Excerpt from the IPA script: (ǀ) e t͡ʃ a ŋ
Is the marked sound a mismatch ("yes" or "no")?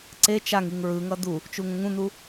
no